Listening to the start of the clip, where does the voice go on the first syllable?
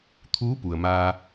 rising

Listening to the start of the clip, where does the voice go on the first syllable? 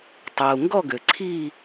low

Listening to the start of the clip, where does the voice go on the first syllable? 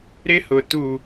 high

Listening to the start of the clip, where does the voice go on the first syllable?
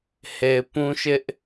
low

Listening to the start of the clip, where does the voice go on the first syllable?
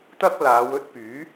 high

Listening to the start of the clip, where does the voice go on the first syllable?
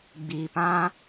low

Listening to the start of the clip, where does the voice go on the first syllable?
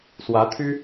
rising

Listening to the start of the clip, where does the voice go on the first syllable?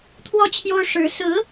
falling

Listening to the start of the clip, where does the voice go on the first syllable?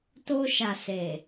high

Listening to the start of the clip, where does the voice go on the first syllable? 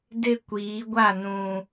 high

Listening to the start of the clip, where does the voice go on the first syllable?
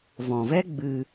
low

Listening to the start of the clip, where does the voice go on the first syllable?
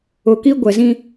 low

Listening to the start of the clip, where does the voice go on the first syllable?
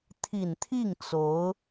low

